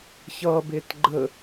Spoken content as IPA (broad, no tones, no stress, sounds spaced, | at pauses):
ç ʌ b e t ɡ͡ǃ ə